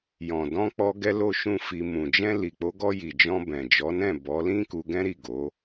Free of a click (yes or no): yes